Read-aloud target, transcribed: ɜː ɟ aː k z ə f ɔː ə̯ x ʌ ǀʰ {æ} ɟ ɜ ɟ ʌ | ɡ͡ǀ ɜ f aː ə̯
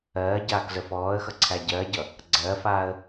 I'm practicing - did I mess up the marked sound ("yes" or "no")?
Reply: no